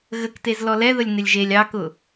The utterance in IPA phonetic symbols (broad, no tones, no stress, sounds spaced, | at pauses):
ɣ ə k t e z l ɔ l ɛ ð ə lʲ n ɪ lʲ ʒ e lʲ ɑ k ʊ